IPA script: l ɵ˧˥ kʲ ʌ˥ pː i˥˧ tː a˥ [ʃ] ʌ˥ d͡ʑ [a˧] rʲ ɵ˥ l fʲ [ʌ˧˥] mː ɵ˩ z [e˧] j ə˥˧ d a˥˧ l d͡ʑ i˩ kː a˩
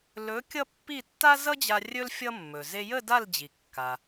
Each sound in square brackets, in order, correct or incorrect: incorrect: z, correct, incorrect: ʌ˥, correct

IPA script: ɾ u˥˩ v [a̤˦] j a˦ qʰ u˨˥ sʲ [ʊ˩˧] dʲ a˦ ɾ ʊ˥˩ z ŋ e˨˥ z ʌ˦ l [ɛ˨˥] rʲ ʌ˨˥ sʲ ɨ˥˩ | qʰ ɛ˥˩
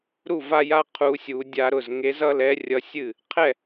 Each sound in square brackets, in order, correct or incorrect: incorrect: a˦, incorrect: u˩˧, correct

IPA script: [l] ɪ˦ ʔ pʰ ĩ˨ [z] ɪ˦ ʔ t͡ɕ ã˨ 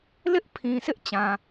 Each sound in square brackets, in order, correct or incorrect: correct, incorrect: s

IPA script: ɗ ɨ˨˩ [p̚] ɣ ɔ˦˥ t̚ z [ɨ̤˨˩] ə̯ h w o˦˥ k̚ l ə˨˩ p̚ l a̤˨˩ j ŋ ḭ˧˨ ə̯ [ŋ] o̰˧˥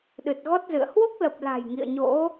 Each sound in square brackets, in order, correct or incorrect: incorrect: t̚, incorrect: ɨ̰˧˨, incorrect: ɲ

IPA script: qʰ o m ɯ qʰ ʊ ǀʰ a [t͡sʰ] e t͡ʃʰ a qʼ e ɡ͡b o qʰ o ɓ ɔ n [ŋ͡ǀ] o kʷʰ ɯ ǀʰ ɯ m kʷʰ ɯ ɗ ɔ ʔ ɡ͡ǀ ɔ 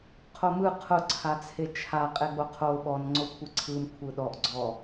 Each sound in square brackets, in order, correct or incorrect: correct, correct

